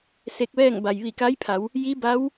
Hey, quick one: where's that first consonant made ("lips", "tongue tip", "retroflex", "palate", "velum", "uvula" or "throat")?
tongue tip